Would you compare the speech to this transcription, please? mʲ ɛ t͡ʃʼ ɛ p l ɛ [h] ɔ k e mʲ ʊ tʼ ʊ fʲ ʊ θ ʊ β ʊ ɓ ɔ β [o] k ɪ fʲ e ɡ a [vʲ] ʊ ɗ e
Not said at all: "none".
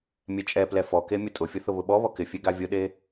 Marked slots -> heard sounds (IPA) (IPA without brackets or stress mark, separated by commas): f, ɔ, vʲ